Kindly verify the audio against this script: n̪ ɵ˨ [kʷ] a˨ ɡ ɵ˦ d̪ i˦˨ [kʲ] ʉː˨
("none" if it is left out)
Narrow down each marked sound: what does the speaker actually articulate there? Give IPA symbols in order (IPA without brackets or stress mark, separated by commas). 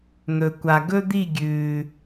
kʷ, ɡʲ